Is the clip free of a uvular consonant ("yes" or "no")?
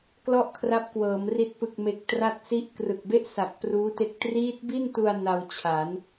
yes